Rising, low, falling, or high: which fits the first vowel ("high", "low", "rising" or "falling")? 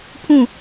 falling